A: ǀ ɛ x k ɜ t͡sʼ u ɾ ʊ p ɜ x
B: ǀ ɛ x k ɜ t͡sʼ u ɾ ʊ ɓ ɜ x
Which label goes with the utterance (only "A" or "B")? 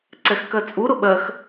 B